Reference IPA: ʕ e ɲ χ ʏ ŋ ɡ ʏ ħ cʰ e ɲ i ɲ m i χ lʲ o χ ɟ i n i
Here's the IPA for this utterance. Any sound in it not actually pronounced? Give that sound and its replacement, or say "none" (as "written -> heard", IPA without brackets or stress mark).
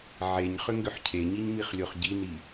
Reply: none